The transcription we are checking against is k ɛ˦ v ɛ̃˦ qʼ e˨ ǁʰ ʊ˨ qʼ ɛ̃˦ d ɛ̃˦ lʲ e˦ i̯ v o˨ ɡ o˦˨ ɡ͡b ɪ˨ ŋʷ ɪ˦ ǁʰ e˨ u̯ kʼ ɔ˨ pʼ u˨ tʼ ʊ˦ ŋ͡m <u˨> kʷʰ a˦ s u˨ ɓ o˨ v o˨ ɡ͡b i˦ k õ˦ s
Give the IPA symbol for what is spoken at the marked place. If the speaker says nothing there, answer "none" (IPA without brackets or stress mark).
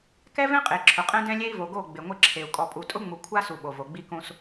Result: u˨